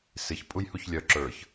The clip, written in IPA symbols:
s ɪ ç pʼ u j h u ç lʲ œ ǁ ə˞ ç

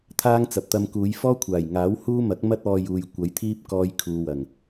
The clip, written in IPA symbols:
t̪ʰ aː˥ ŋ t͡s ɐ˨ p̚ t̪ ɐ˧ m k uː˨˧ j f ɔː˥ kʷʰ aː˨˩ j ŋ aː˨˥ w h uː˥ m ɐ˨˥ k̚ m ɐ˥ t̚ ɔː˧ j uː˨ j kʷ ɐ˨˥ j t̪ʰ iː˥ p̚ k ɔː˧ j kʰ uː˨ w ɐ˨˩ ŋ

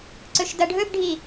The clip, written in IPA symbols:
ǀ ɵ ʃ d ɐ ɖʱ ɵ b ɖʱ i

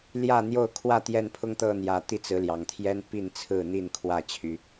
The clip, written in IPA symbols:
l j ä˥˨ n̪ j o˥˨ ʊ̯ kʰ w ä˥˨ t̪ j ɛ˥˨ n pʰ ʊ˦ ŋ t̪ ɤ˥˨ n̪ j ä˨˩ t̪ i˦ t͡s ɹ̩˨˦ l j ɑ˨˩ ŋ t̪ʰ j ɛ˦ n p i˥˨ n t͡sʰ ɹ̩˥˨ n̪ i˥˨ n kʰ w ä˥˨ t͡ɕʰ y˦

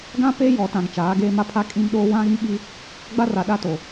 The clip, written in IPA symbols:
ɡ ã˦ p eː˦ j ɔ˨ t ã˨ ŋ t͡ʃ aː˨˦ ɡ eː˦ m a˦ pʰ a˦ kʼ ĩ˦ m ɗ oː˦ w ã˦ ɣ ĩ˦ ɓ i˦ | ɡ͡b a˦ r a˨ ɗ a˦ t o˨

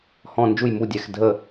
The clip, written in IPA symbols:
h ɔ̃˧˩ n d͡ʒ u˧˩ j m u˩˧˩ dʲ ɛ˩˧˩ x dʱ ə˧˩

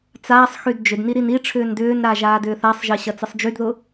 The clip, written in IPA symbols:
t͡s aː sˤ x y d d͡ʒ ʏ d n i ɾ i n i ʈ͡ʂʰ ʏː n d ʏː n ɾ a ʒ aː d ʏː θ a sˤ ʒ ɪː ɕ ɐ t͡s ɪ sˤ d͡ʒ y d ð ʊ

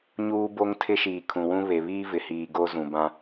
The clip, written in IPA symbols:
ɲ uː˦ b o˦ ŋ tʰ ɪ˦ ʃ iː˨ kʰ ũ˨ w ũ˦ β e˨ β iː˦ v ɪ˨ h iː˨ ɡ o˦ z ũ˨ b ã˦

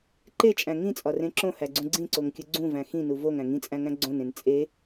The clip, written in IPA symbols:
ǃ e t͡ʃʼ æ̃ ŋ ĩ t͡sʼ ɒ r ẽ ǁ õ h æ ɡ͡ǀ ũ ɡ͡ǀ ĩ ǀ o ŋ kʲ u ɡ͡ǀ ũ v æ̃ x ĩ n u v o ŋ æ̃ ŋ ĩ t͡sʼ æ̃ ŋ æ̃ ɡ͡ǀ õ n ẽ n t͡sʼ e

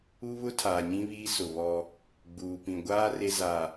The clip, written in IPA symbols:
u˦ β ʊ˦ tʰ aː˨ ɲ ĩ˦ β iː˦ s ʊ˨ β ɔ˦ | ɡ͡b uː˨ p ĩ˨ ɡʷ aː˦ r e˦ z a˨

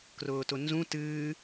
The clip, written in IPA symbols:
k r ʊː t ʊ n z ũ t ɨː

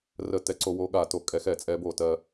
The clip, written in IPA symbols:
r ə˥˩ t ɛ˧ ǀ o˧ w o˧ ɠ a˥˩ t o˧ kʼ ɛ˧ x ɛ˥˩ t͡sʼ ɛ˧ b o˥˩ t ɜ˧

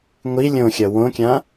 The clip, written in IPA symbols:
ŋʷ i lʲ õ xʲ ʌ w õ kʲ ã

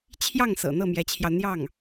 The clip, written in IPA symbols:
t͡ɕʰ j ɑ˥˩ ŋ s ɤ̰˨˩ n̪ ɤ˥˩ m j ɛ˧˥ t͡ɕʰ j ɑ˧ ʊ̯ n̪ j ɑ˥˩ ŋ

